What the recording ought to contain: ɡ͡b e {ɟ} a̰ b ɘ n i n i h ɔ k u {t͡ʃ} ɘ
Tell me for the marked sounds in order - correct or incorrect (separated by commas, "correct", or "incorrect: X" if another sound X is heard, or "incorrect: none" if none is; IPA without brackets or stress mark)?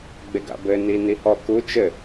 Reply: incorrect: ɡ, correct